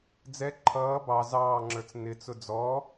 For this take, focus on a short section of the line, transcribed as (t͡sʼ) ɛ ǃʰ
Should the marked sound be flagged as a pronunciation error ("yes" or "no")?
yes